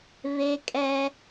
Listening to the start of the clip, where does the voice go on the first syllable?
high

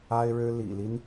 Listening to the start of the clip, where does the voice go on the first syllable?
high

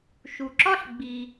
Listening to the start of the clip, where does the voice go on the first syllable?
low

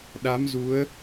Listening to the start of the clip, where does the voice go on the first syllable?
rising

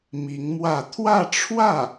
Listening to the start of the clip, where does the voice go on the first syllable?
rising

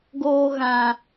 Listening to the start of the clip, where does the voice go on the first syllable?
low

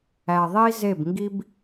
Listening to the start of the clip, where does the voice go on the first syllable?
low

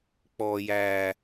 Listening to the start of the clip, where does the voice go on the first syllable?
low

